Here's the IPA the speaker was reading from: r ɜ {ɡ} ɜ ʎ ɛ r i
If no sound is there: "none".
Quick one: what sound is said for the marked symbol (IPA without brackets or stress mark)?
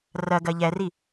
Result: ɡ